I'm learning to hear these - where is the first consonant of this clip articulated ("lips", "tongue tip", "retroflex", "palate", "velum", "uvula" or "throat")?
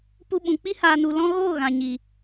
lips